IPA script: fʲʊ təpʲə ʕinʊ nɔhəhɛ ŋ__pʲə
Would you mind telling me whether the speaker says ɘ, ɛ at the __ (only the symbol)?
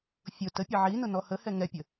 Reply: ɛ